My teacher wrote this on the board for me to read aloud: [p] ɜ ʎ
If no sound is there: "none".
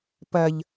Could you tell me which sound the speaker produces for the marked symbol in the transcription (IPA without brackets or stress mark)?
p